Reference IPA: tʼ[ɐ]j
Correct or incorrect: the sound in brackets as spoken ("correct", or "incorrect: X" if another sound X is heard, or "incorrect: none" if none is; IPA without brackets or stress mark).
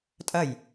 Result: correct